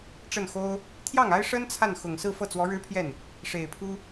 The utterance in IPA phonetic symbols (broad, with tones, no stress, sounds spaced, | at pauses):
ʈ͡ʂ ə˥˩ n x o˥ ʊ̯ | t̪ʰ j ɑ˥˩ ŋ a˥ ɪ̯ ʂ ə˥ n t͡sʰ a˥˩ n x ʊ˨˩ ŋ s ɹ̩˥˧ f ɤ˥˩ t͡s w ɔ˧˥ ɻ ɻ̩˥ pʰ j ɛ˥˩ n | ʂ e˨˩ ɪ̯ pʰ u˥